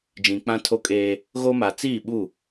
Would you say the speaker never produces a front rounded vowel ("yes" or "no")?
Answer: yes